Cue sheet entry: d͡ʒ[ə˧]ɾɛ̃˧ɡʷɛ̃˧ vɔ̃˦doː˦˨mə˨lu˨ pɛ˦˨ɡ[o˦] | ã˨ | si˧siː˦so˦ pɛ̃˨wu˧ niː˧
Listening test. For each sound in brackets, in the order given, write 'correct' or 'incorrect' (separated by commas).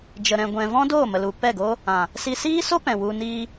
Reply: correct, correct